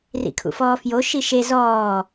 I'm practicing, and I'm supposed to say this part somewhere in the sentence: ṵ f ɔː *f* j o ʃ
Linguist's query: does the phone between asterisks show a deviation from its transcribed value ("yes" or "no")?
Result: no